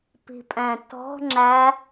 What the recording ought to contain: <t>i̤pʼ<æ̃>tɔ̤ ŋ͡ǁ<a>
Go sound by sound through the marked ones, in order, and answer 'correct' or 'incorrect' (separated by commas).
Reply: incorrect, correct, incorrect